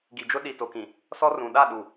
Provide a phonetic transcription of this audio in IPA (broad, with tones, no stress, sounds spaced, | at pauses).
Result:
ɡ i˨ d͡ʒ ʊ˦ ɗ i˨ t o˨ k ĩ˨ | s ɔ˦ r ũ˨ ɗ a˦˨ ɗ u˨